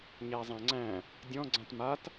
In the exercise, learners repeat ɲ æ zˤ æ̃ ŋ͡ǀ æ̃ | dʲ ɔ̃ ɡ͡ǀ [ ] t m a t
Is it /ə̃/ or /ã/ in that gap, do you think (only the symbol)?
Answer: ã